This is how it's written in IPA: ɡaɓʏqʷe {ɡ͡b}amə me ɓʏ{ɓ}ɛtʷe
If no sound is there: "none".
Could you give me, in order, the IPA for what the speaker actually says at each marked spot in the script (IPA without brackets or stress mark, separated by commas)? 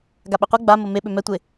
ɡ͡b, m